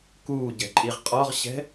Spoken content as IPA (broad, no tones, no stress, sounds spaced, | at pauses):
k uː ɟ ɛ̤ ǃʼ i ʁ qʼ ɔ ʁ ɕ ɛ̤